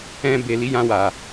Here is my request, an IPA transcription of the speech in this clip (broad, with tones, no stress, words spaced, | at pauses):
ɛ̃˧be˨ li˨˦jã˧ wa˨